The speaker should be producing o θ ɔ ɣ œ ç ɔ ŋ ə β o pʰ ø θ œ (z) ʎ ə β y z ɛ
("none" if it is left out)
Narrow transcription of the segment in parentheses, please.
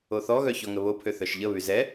ʃ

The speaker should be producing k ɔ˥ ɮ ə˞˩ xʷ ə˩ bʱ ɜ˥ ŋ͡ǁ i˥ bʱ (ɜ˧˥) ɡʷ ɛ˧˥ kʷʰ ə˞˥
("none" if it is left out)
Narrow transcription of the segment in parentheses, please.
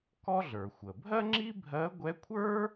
ɜ˧˥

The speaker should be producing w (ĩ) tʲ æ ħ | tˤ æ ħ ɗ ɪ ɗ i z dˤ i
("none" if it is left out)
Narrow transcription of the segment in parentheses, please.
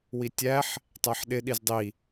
i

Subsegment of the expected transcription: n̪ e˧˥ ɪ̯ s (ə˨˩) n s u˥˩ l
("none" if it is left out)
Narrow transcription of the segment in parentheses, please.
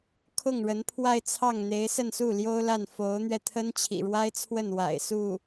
ə˥˧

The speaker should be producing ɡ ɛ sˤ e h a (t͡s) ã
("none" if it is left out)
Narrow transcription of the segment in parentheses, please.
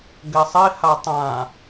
tˤ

